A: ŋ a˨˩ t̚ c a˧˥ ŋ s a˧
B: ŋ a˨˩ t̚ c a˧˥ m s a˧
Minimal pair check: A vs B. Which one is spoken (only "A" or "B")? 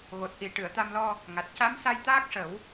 B